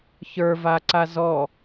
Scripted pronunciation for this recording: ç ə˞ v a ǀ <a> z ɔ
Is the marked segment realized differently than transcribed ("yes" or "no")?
no